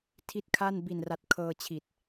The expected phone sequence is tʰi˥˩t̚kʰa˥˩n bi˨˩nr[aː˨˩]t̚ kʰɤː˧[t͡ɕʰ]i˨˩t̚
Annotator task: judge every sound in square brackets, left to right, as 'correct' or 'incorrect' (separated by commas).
incorrect, correct